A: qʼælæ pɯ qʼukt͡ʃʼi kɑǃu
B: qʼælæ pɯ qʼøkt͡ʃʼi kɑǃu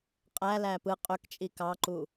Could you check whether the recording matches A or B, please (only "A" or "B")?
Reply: B